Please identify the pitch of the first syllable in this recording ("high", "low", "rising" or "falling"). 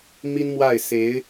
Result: high